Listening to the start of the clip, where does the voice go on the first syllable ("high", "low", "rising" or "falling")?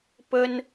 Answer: high